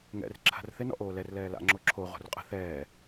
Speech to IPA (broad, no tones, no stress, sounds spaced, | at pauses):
ŋ ɛ̰ r ǁʰ a̤ r θ ɪ n ɔ̰ ʔ oː l ɛ r l ɛː l a̰ ŋ͡ǁ o ǁʰ o ʁ o̤ r qʼ ə̤ θ ɛː